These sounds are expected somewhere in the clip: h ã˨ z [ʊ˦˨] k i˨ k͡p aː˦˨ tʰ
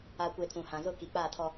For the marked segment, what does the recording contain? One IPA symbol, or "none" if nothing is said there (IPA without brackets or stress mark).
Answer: ʊ˦˨